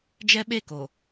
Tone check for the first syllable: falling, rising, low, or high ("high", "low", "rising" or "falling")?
high